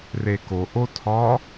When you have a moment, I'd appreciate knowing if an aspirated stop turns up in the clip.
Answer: yes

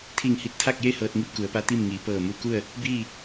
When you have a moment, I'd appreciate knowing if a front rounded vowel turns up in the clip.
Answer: no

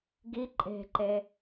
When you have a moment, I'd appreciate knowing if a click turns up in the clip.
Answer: yes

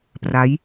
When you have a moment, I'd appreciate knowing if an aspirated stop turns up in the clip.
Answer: no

